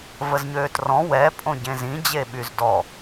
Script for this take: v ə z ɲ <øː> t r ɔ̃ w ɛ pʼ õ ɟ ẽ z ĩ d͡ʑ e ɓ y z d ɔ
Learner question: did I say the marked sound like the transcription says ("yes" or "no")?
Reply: yes